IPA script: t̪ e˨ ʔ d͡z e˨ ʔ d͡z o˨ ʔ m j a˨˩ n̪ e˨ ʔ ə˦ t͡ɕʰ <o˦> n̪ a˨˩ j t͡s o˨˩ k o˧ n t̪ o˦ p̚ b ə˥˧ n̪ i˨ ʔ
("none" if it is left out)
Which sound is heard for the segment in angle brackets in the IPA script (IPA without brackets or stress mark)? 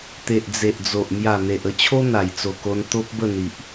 o˦